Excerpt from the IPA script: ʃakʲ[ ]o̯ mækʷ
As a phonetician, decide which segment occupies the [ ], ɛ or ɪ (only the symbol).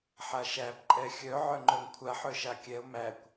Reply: ɛ